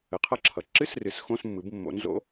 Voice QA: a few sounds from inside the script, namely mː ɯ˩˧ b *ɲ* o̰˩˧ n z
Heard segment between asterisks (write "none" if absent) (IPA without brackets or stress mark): mː